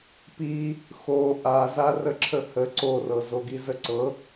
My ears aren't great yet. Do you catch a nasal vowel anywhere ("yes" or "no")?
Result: no